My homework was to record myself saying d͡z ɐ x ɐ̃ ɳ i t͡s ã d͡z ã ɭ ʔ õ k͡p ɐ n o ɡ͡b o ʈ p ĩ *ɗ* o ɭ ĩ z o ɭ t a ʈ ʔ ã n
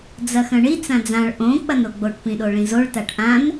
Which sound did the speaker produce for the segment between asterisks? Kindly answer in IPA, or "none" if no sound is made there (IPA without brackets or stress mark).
ɗ